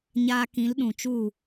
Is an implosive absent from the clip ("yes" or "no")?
no